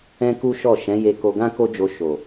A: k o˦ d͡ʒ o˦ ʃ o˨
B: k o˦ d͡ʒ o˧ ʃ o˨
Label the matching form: B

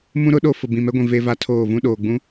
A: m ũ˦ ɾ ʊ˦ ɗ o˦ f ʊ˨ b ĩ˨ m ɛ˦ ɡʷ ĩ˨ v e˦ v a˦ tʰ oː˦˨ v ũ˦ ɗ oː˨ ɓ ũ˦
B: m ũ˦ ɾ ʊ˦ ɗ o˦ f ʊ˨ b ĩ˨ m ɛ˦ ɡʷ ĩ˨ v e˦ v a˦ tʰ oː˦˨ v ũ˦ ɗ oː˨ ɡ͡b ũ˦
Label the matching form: B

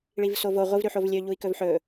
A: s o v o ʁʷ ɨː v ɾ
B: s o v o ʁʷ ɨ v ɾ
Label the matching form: B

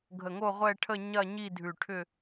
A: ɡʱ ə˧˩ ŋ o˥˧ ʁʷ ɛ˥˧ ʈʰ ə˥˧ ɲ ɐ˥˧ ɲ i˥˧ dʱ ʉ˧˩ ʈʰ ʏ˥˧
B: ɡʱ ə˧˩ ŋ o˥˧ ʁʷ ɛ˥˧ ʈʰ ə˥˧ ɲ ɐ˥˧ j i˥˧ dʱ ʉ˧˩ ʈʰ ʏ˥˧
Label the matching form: A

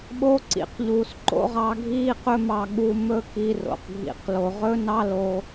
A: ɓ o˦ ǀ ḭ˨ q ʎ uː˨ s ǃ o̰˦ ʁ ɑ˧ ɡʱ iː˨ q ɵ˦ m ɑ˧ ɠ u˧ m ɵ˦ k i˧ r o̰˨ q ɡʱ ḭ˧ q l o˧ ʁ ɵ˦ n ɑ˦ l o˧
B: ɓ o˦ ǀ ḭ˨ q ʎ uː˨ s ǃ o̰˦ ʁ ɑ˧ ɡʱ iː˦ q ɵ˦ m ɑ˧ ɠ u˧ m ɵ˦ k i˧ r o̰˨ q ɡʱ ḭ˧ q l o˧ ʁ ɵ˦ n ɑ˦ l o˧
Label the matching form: B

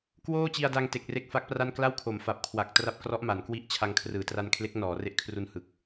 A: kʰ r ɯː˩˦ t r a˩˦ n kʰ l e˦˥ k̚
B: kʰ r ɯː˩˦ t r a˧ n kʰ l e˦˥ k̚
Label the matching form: B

